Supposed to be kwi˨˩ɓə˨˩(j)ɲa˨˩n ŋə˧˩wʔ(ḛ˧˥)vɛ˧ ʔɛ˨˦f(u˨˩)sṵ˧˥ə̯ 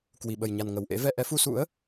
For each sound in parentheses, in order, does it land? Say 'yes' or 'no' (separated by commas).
yes, yes, no